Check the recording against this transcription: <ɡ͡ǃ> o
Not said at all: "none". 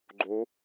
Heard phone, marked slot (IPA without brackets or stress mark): ɡ͡ǃ